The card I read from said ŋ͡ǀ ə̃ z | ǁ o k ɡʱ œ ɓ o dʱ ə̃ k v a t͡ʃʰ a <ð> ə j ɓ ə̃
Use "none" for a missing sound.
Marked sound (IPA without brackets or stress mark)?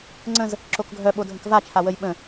w